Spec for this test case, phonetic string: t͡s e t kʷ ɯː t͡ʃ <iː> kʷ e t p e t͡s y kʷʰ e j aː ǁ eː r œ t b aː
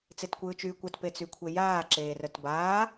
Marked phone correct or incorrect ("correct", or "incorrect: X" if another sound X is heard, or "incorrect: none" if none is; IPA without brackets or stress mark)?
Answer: incorrect: yː